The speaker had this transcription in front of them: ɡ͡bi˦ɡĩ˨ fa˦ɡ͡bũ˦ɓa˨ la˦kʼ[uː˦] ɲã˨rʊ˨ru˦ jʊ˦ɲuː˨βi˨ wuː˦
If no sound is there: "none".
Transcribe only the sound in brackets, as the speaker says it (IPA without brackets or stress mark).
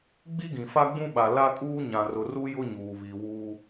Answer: uː˦